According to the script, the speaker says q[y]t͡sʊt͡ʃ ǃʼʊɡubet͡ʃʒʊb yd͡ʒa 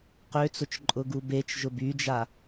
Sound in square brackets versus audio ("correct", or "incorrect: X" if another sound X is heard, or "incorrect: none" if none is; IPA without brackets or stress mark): incorrect: ø